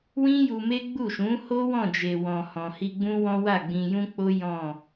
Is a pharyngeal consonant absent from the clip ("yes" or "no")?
yes